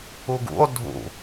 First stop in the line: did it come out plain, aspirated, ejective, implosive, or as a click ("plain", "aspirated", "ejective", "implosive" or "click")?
plain